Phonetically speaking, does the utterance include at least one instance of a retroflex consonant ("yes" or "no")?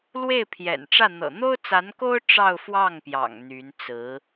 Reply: yes